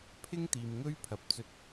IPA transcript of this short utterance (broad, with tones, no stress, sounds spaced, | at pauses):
pʰ ɪ˥ ŋ t̪ iː˨ m ŋ ɵ˥ ɥ pʰ ɐ˨ p̚ t͡s ɵ˧ t̚